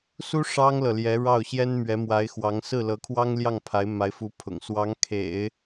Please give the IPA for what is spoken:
s u˥ ʂ ɑ˥ ŋ l ɤ˨ l j ɛ˧˥ ɻ ɑ˥˩ ʊ̯ ɕ j ɛ˥ n m ɥ ɛ˧˥ m w a˧˥ ɪ̯ x w ɑ˧˥ ŋ s ɹ̩˥˩ l ɤ˧˥ kʰ w ɑ˥ ŋ l j ɑ˥˩ ŋ pʰ a˧˥ ɪ̯ m a˧˥ ɪ̯ f u˧˥ pʰ ʊ̰˨˩ ŋ s w ɑ˧˥ ŋ kʰ ḛ˨˩˦ ɪ̯

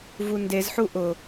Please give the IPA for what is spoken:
v u n d e z ħ u ʔ ʊ

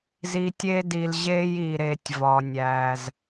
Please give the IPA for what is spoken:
z i˨ tʲ e˦ d i˨ l ʑ e˦ j i˨ ɾ e˨ tʲ v ɒ˨ nʲ æ˨ z

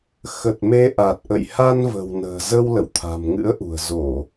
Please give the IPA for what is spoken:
x ə˨˩ t̚ m e˧ ʔ a˨˩ t̚ ʔ ə̰˧˨ j h a˧ n v ə̤˨˩ w n ə̤ː˨˩ z ə˧ w l ə̰˧˨ w t̪ʰ a̤˨˩ m ŋ ɨ̰˧˥ ə̯ ʔ ṳ˨˩ ə̯ z o˧˩˨

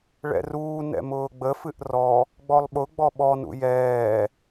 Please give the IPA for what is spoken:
ɭ ɛ̰ r uː n ɛ̰ m ʊː ɡ͡b ə f ɨ ʔ r ɔ | ɡ͡b ɔ lˠ ɓ ʊ ɡ͡b ɔ ɓ ɔ n ṵ j ɛː

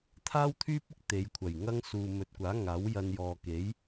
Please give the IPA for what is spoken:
t̪ʰ aː˥ w t̪ʰ yː˥ p̚ ɪ˥ k̚ t̪ e˨˧ j kʷʰ ɐ˨˩ j ŋ ɐ˥ ŋ s uː˨ m ɵ˨˥ t̚ kʷ aː˨˥ ŋ aː˨˥ w j ɐ˧ n j ɔː˨ k e˨˥ j

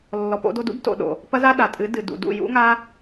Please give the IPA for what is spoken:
lː ɔ˨ p o̰˧ d o˧ d ṵ˦ b t o̰˧ ɗ o̰˨ | p ɐ˦ z a˦ ɗ a˨ tʼ ɨ˨˦ d ɨ˨ d ṵ˨ d ṵ˦˨ j ṵ˦ ŋ a˦

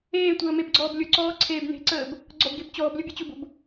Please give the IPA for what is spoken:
eː tʷ əː m e b ɡ͡ǀ ɔː b lʲ ʊ ǀ ɔː ǀʰ eː b n e̤ ǀ əː b | ɡ͡ǀ ɔ b ɡ e b t͡ɕ ɔː b lʲ ʊ bʲ ʊ t͡ɕ ʊ b ʊ b

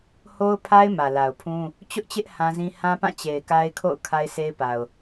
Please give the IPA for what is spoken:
h o˦ ʊ̯ pʰ a˦ ɪ̯ m ä˨ l a˨ ʊ̯ pʰ ũ˦ | t͡ɕ ʊ˦ ʔ t͡ɕ ɪ˦ ʔ h ã˦ z ĩ˦ h ã˦ p ã˦˨ t͡ɕ e˨ ɪ̯ k a˦ ɪ̯ kʰ o̰˦˨ ʊ̯ kʰ a˦ ɪ̯ s e˦ ɪ̯ p a˨ ʊ̯

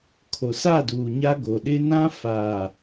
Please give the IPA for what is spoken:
kʰ o˨ s a˦˨ d uː˨ ɲ a˦ ɡ o˨ ɗ ɪ˦ n ã˦ f aː˨

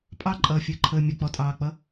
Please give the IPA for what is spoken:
pʼ ɑ ǃʼ ʌː fʲ əː ǃʰ əː mʲ ə k͡p ɔ tʼ ɑː k͡p ʌ

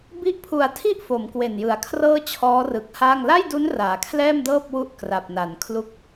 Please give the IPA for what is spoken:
b i˦˥ ʔ pʰ u˨˩ a̯ tʰ i˥˩ ʔ f o˩˦ m k w e˨˩ n j ɯ˩˦ a̯ kʰ r ɤː˥˩ t͡ɕʰ ɔː˦˥ r ɯ˨˩ k̚ h aː˥˩ ŋ l a˥˩ j d u˦˥ n r aː˨˩ kʰ l ɛː˥˩ m d ɤː˥˩ p̚ w u˦˥ ʔ k r a˨˩ p̚ n a˩˦ n kʰ l u˥˩ k̚

